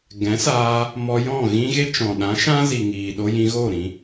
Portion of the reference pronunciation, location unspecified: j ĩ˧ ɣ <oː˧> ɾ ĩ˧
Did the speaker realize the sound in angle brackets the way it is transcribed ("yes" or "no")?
no